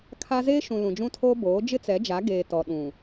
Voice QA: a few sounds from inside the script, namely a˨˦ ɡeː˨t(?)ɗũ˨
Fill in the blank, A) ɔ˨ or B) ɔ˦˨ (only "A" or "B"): A